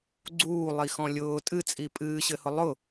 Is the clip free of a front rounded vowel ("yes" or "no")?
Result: yes